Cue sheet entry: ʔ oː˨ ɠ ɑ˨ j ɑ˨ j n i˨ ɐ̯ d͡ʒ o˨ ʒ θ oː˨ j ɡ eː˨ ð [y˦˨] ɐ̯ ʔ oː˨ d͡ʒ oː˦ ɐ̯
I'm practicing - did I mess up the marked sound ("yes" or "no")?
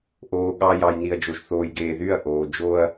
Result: no